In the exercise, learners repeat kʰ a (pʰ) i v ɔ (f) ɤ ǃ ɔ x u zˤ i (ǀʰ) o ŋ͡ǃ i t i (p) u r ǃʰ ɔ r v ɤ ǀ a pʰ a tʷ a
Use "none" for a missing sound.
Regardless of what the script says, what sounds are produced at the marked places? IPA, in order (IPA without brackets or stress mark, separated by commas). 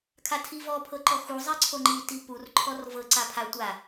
tʰ, pʰ, ǀʰ, p